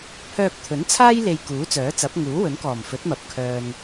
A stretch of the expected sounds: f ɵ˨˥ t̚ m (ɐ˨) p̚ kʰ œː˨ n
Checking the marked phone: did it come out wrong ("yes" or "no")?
no